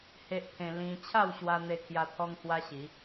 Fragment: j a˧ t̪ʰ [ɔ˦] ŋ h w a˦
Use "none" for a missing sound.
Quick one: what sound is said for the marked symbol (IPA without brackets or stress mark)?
ɔ˦